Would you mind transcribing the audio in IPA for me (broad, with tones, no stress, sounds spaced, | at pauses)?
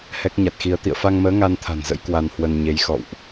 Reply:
h ɛ˦˥ k̚ ɲ a˨˩ t̚ x i˧ ə̯ t̪ ḭ˧˨ ə̯ f a˧ ŋ m əː˨˦ ŋ a˧ n t̪ʰ a̤˨˩ n z ə̰˧˥ j k w a˧ n h w ə˧ n ɲ e˨˦ j x ɔ̰˧˨ w ʔ